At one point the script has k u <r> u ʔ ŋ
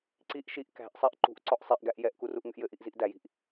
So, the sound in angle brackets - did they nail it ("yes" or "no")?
yes